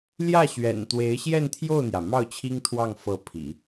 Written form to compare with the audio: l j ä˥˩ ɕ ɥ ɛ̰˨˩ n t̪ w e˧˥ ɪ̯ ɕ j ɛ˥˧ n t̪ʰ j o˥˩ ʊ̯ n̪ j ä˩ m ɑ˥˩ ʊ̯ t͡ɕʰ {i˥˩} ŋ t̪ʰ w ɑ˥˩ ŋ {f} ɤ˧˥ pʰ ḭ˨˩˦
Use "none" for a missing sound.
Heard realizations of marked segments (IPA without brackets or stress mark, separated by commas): i˥, f